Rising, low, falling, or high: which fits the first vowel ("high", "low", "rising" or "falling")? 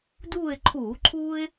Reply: falling